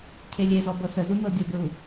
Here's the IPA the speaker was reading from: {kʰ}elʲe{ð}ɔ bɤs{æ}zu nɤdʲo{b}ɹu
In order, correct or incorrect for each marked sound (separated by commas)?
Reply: incorrect, incorrect, incorrect, correct